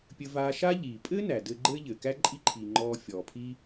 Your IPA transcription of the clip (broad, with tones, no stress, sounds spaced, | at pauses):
pʲ ɘ˧ v aː˧ ʃ aː˥ ʎ iː˩ pʼ ɘː˥ n æ˩ d ɘː˧ ɡ͡ǃ ɘː˥ ʎ ɘː˩ k æ˥ ǃʼ i˥ ǃʰ iː˩ ŋ͡ǃ ɔː˧ fʲ ɔː˩ pʰ i˥